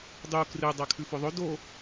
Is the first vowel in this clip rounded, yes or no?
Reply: yes